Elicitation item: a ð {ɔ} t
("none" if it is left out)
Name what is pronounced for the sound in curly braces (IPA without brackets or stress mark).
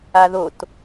o